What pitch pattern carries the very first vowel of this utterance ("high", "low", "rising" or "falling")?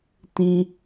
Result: low